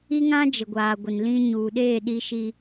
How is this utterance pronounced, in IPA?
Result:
i˦ ŋ ã˦ d͡ʒ ɪ˨ ɡʷ aː˨ ɡʷ ɪ˨ n l ĩ˦ ɲ uː˨ ɗ eː˦˨ ɗ i˦ ʃ i˦

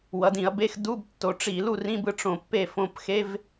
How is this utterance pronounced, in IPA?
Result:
w ʌ˩˧ d ĩ˧˩˧ ɐ̯ b e˧˥˧ x d u˧˥˧ b tː o˩˧ ʈ͡ʂ i˧˩˧ l u˥˨ r ĩ˧˥˧ b ɯ˧˥ ʈ͡ʂ õ˧˩ pː e˥˨ f õ˧˩ p x e˧˥˧ v

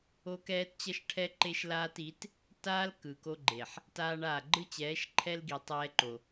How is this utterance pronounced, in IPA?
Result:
o˦ k ɛː˦ t t͡ɕ ʌ˦ ʃ ʈʰ ɛ˦ ǃ e˦ ʃ l aː˦ t i˨˦ t | t aː˦ l k ɯ˨ k o˦ ɡ͡ǃ e˨ ħ | t aː˦ ɳ aː˦˨ ɡ͡ǃ ɯ˦ t͡ɕ ɛː˨˦ ʃ ǃʰ ɛ˦ l ɡ i˨ tˤ ɛː˦ ǃ o˨

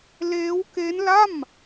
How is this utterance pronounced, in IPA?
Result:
l eː˦˥ w k e˦˥ n l a˥˩ m

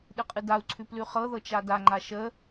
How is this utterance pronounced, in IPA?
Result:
ɗ ɨ qʼ ɨ d a u̯ ǀʰ ʉ p l ʉ χ ɤ ð ɤ t͡ʃ a d a ŋ͡ǃ a ʃ ə

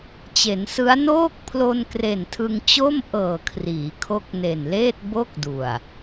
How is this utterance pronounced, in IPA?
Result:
t͡ɕ e˩˦ n s ɯ˦˥ a̯ n oː˥˩ k̚ pʰ l o˧ n k r e˨˩ n tʰ ɯ˧ ŋ t͡ɕ o˥˩ m ʔ ɤː˨˩ kʰ r iː˩˦ kʰ o˦˥ k̚ n e˨˩ n l eː˥˩ t̚ b o˥˩ k̚ d u˨˩ a̯

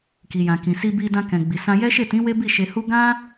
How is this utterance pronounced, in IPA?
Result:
k i˨ j ã˨ k ĩ˨ s i˧ b i˧ d ã˧ k ɛ̃˨ ɡ͡b i˨ s ã˧ j ɛ˦ ʃ e˦˨ t ĩ˨˦ w e˦ b i˦˨ ʃ e˧ h u˦ ɡ ã˦

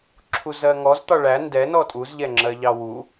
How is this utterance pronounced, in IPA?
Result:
ǁʰ u z ɜ ŋ ɔ z t̪ ɒ ɭ æ n d ɛ n ɔ tʼ u z ʎ ɛ ŋ͡ǁ ɜ ʎ ɑ w u

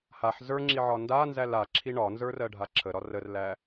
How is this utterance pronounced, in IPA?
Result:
h a ħ z ə˞ ŋ͡ǁ i ʕ ɒ n d a n z æ l a ǁʰ i ɳ ɒ n z ə˞ r ɜ ɖʱ a ǁʰ ə ɾ ɒ r ə r l æ

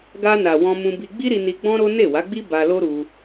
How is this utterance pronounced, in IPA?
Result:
ɡ a˧ n a˨ w ɔ̃˧ m ũ˧ b i˧ ɡ͡b i˦ ɾ i˧ n i˧ ɡ͡b ɔ̃˦ ɾ o˦ n e˦˨ w a˨˦ ɡ͡b i˦ b a˧ l o˦ ɾ u˧

